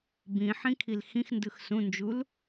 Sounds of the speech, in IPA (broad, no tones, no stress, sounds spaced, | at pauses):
b ĩ ħ ĩ kʰ i l x ĩ x n d ɯ x s ũ n d͡ʒ u l